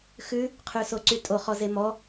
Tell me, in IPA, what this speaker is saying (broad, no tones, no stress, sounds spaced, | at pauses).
x ʉ | qʰ ʉ s o ǀ y tʼ o χ ɔ z e m ɔ